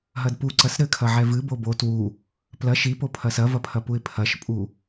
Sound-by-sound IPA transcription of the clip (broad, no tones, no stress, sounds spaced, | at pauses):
ɦ ɐ d p u ǀ ɐ s ɾ ɘ kʰ ɐ ʕ ɛ v ɨ b o b o t w u | p l ɐ ʃ i p o pʰ ɐ s ɐ v ɐ pʰ ɐ p u ɪ̯ pʰ ɐ ʃ pʼ u